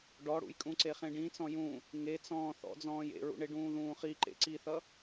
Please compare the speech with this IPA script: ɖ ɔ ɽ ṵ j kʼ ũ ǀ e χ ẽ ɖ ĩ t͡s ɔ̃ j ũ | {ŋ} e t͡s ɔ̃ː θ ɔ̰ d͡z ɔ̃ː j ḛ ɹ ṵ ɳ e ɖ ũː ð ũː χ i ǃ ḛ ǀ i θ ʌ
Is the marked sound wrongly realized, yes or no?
no